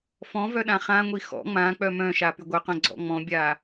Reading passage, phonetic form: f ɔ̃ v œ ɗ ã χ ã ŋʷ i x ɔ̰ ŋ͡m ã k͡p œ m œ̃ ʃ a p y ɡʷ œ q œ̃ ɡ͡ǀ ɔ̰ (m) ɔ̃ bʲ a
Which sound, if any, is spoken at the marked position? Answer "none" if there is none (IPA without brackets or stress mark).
ŋ͡m